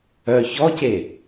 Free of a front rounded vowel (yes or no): no